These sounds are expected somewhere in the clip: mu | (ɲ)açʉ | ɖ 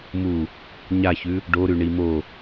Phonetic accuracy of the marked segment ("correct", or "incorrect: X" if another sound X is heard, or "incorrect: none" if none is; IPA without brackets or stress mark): correct